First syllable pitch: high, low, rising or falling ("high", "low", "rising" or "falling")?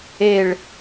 low